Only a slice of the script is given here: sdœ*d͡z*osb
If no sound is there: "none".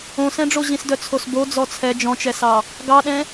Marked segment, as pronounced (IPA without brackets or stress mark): t͡sʰ